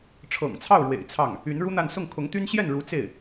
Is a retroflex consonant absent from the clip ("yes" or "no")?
no